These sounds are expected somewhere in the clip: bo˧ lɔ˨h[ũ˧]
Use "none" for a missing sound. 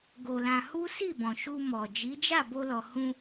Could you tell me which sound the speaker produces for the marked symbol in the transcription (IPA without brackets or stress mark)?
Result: ũ˧